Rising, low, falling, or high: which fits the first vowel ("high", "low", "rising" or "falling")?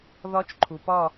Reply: rising